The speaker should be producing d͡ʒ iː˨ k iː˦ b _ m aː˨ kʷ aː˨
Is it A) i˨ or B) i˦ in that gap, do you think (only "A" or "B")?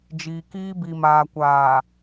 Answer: A